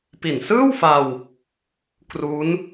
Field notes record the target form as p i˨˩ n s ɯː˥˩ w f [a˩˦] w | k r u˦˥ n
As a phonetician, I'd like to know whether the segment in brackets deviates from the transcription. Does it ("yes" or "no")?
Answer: yes